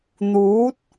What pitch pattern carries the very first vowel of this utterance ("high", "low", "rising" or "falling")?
rising